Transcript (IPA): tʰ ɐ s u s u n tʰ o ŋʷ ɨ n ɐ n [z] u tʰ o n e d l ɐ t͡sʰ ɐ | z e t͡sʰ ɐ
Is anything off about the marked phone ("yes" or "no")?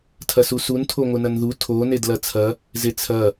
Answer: yes